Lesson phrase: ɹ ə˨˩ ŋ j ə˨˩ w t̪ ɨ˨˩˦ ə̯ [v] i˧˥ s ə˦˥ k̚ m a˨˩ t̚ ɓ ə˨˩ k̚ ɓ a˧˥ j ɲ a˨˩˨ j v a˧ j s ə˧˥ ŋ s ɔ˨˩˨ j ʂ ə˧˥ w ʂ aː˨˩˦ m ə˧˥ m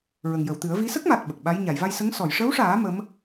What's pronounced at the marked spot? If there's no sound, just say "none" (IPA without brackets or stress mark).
v